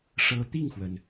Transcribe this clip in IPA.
ʂ ɤ˧˥ t̪ i˥˩ ŋ x w ə˩ n

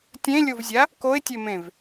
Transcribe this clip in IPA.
tʲ ẽ lʲ o v zʲ a | k o ɪ̯ tʲ e m ẽ v

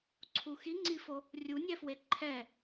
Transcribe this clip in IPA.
ǀʰ u x i ŋ͡ǀ i f o | rʲ u nʲ ɛ f w e ǃʰ ɛ

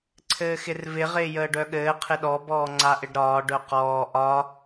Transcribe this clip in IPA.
ǀʰ ɘː x ɪ r v ɪ ʁ ɪː j əː ɖ œ ɠ ɘː qʰ ɪ ɗ ɔ b ɔː ŋ͡ǀ a ʔ ɪ ɖ ɾ ɒː ɖ œ q ɔː ʔ ɒ

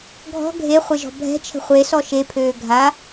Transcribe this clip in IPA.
ɡʱ ɔ̤ ɡʱ e χʷ e ʒ ɔ̤ bʱ ɛ̤ t͡ʃʰ ə̤ χʷ e s ɔ ʃ e pʰ øː ɡʱ a

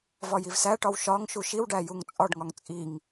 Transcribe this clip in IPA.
v ɒ j i v s æ ʈ ɒ w ʃ ɒ ŋ ʃ u ʃ i w ɖ æ j u ŋ t͡sʼ ɒ ɖ ŋ ɒ ŋ t͡sʼ i ŋ

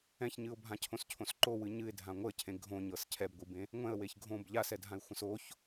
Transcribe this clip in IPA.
ɛ̃ ç ɲ ɨ ʊ̯ bʱ ã cʰ õ s cʰ õ s ǃ o w ɨ ɲ ɨ ɪ̯ dʱ ã ŋʷ ə cʰ ẽ ɡʱ õ ɲ ɤ s cʰ ɛ b ɡʷ ɨ b ẽ | ŋʷ ɛ̃ ə̯ w e ç ɡʱ õ b ʎ a s ɛ dʱ ã ɪ̯ xʷ ə̃ s o ç

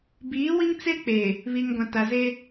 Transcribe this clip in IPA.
b iː˨˦ w i˦ ŋ t͡s e˦ k͡p eː˨ | β i˨ ŋ ɡʷ ã˨ t a˨ z e˦

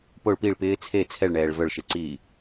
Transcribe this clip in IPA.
p o ɭ p i ɭ p ɪː t͡sʰ e t͡sʰ ɛ ɭ ɳ ɛː ɭ v œ ɭ ʃ e ǀ iː

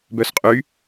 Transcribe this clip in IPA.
b œ s qʼ y

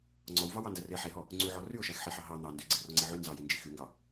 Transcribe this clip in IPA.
ŋ͡ǀ ɔ w v ɑ w ɑ n d æ r e ħ e ɦ ɔ | ŋ͡ǀ y ʕ ɔ r y ʊ̯ ʃ æ x ħ e ħ ɑ ɦ ɑ n̪ ɑ n d y ɡ͡ǀ i r ɔ ŋ͡ǀ i ʕ y n z ɑ j i n d͡ʒ i x y ŋ ɡ ɑ

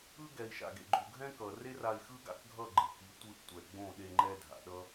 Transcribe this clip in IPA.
ɯ˦ ɡ ɛ˨ i̯ ʃ a̰˨ ɡ ḛ˨ ɡ͡ǃ u˨ ɡʱ ɛ̃˦ k ʌ˨ r e˦ r a˧ i̯ x ɯ˦ ɡ a̰˧ k ɡʱ ʌ˦˨ ɡ͡ǃ ɯ˨ k i˨˦ tʷ ɯ˧ ʔ tʷ ɛ˨ ɡ͡b õ˦˨ ɗ e˧ ŋ͡ǃ ɛ˧ dʱ a̰˨ ɗ ʌ˦

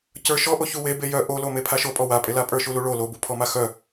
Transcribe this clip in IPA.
c ə˞ ʃ ɔ ʔ o ç u w e b e j œ ʔ o l o m e pʰ a ʃ o pʼ ɔ w a pʼ e l a pʼ ə˞ ʃ u l u ɭ o l o b u pʰ ɔ m a x œ

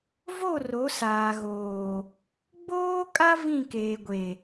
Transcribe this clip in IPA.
v o˦˨ r o˨˦ s aː˨ ɣ oː˨ | ɡ͡b oː˦ kʼ a˦ v ĩ˦˨ k eː˨ ɡʷ e˨

